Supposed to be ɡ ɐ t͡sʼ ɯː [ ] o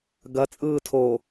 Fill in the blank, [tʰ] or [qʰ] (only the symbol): tʰ